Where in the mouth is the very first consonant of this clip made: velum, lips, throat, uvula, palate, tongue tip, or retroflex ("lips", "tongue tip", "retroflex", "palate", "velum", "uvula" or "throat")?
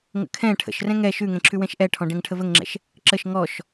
velum